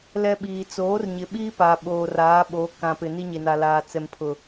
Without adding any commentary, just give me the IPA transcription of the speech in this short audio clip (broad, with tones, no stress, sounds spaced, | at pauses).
l ɛ˦ ɓ iː˨ t͡s oː˨˦ r ɲ ɪ˨ ɓ iː˦ p a˨ ɓ oː˨ r aː˨˦ ɓ o˨˦ k ã˨ p ɪ˨ n i˦ ɲ e˨ n a˨ l aː˨ t͡s ɛ˨ m pʰ ʊ˨